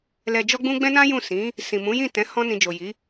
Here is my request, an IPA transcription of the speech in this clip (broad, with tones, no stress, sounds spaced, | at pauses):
l ɛ˧ d͡ʒ ɔ˦ ɡ͡b ũ˦ ɡ͡b ɛ̃˦ n ã˦ j ũ˦˨ s ĩ˨˦ | s ĩ˨ m ũ˨˦ j ĩ˦˨ t ɛ̃˨˦ h ɔ̃˧ n ĩ˨ d͡ʒ o˨ j i˨˦